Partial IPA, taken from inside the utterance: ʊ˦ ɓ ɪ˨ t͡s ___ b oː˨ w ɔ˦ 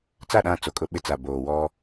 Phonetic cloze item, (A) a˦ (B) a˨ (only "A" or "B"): B